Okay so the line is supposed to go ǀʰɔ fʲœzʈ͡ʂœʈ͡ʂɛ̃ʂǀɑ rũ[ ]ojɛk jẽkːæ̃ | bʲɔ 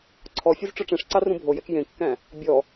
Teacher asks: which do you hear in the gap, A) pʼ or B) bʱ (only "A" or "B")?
B